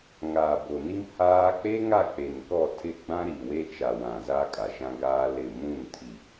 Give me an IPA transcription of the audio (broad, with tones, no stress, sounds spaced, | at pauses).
ŋ aː˨ b o˨ n i˦ m h aː˦ k͡p e˦ ŋ a˦˨ k͡p e˨ n k ɔ˦˨ tʰ ɪ˦˨ ɡ͡b ã˦ ɾ i˨ w e˦ t͡ʃ a˨ w ã˨ z aː˦ kʼ a˨ ʃ ã˦ ɡ aː˦ l ɪ˦˨ m ũ˦˨ n tʰ i˨